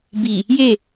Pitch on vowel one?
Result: low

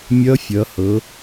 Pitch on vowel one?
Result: rising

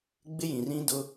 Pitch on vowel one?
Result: high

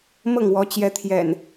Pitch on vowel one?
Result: falling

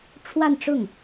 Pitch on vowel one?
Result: falling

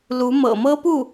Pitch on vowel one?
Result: rising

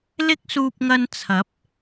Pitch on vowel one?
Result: high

